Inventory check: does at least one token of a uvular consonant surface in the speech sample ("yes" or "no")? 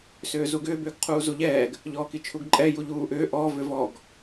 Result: yes